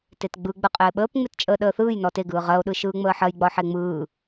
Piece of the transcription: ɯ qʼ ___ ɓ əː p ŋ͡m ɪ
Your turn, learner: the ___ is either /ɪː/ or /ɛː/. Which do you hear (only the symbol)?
ɪː